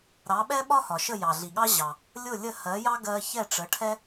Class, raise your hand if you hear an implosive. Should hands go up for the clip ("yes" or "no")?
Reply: yes